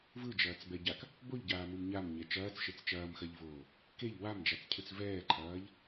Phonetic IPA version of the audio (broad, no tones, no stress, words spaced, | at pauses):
vɯd͡ʒɐːt͡sbɛɟak | boʎɟaːmɯm ɲamɲɛ t͡ʃɐːt͡sʃet͡s t͡ʃɐːmxɐʎvoː | keʎ wamd͡ʒat͡scʰɯt͡s vɛːǃʰɐːʎ